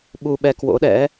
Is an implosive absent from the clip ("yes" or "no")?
no